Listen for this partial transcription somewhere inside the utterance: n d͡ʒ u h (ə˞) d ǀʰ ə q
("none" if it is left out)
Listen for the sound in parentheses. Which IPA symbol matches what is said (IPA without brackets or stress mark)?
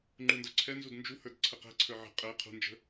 ə˞